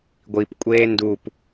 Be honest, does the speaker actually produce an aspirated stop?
no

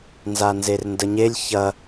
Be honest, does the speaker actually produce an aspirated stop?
no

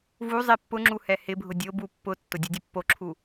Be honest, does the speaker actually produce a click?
yes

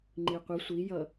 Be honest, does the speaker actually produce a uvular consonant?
yes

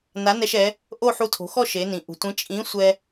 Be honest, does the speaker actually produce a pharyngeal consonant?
yes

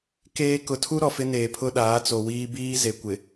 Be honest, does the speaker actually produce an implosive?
yes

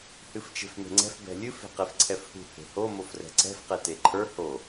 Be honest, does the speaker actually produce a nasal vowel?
no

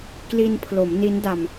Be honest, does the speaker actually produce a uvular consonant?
no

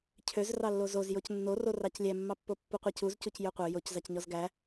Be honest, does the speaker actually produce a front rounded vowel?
yes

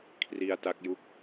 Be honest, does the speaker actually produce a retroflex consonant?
no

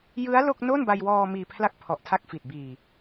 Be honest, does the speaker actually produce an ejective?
no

